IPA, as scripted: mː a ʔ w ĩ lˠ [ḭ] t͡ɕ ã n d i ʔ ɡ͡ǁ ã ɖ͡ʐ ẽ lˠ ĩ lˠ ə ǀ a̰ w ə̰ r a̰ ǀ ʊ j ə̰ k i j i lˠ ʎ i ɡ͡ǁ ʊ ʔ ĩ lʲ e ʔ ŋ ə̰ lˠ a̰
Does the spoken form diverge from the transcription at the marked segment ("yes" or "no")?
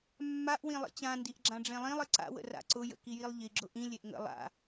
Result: no